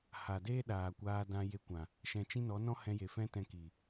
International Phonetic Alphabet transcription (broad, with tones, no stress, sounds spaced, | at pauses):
h a˨ d eː˦ ɗ aː˨ kʷ aː˧ d ã˧ j e˧ kʷ ã˨ | ʃ ɛ̃˧ t͡ʃ ĩ˦ n ɔ˨˦ n ɔ̃˦ h ɛ̃˧ j e˨ f ɛ̃˦ t ɛ̃˧ k i˨